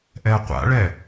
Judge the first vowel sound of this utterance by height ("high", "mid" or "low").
mid